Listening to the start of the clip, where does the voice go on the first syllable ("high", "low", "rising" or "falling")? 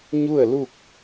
falling